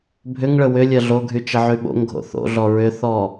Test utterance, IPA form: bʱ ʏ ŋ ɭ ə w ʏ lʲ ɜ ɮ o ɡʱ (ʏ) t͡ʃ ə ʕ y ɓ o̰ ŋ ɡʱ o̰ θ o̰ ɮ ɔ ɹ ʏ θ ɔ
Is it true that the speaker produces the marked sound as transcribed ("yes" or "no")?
no